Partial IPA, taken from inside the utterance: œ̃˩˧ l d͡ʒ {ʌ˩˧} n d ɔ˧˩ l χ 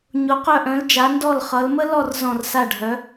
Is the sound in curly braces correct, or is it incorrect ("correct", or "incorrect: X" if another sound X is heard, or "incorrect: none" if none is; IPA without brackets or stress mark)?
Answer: incorrect: a˩˧